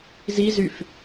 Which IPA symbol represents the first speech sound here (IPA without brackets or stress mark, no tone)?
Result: z